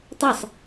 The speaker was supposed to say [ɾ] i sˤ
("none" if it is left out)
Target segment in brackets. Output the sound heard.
tˤ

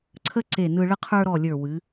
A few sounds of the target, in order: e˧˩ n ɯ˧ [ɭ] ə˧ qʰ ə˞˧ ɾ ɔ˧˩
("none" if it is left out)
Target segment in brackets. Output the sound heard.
ɭ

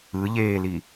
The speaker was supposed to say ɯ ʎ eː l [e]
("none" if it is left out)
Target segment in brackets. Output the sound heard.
i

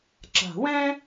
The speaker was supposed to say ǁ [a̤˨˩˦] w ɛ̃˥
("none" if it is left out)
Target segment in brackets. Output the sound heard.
a̤˨˩˦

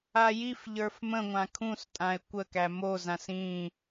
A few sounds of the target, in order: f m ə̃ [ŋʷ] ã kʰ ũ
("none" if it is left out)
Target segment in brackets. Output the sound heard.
ŋʷ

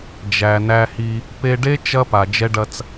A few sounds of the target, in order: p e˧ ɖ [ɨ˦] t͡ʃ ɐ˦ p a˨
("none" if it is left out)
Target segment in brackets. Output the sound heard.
e˦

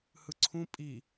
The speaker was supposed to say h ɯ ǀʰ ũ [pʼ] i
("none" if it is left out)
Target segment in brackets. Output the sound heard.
pʼ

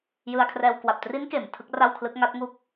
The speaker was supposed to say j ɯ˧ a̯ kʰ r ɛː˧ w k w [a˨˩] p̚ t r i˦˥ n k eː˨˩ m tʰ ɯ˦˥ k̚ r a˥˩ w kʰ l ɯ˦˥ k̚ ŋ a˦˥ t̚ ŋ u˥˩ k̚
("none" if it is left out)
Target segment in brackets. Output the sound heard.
a˨˩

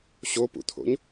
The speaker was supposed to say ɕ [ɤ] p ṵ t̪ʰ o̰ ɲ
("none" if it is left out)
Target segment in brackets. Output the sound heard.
o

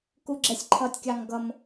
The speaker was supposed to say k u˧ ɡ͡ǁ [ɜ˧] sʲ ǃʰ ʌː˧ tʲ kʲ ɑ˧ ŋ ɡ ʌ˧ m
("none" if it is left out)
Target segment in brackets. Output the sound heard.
ɛ˧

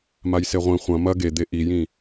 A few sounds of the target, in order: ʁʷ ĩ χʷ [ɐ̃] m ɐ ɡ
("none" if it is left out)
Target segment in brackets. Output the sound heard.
ɐ̃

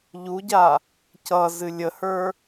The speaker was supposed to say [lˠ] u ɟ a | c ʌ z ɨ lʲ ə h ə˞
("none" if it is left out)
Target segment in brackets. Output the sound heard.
ʎ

